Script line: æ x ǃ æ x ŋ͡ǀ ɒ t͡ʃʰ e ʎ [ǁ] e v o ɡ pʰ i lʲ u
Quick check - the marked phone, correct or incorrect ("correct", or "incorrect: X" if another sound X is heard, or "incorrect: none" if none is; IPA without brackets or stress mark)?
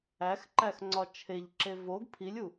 correct